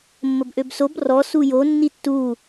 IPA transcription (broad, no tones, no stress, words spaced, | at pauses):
mːəbʔøbsob rɔ sujo nːitːu